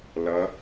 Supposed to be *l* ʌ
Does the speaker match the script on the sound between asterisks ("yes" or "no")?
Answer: yes